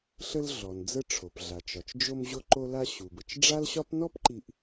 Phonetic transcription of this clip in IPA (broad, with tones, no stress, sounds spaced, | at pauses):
ɬ ə˧ l ɮ ɔ˩ n d͡z ə˧ ʈ͡ʂʰ o˩ p ɮ a˩ t͡ʃ ɒ˩ t͡ʃ d͡ʒ o˧ m ʑ o˧ ǃ o˧ l a˧ ɕ u˩ b ə˩ t͡ʃ ɖ͡ʐ a˥ l ɕ ɒ˥ p n ɔ˥ p ǃ i˧ ʔ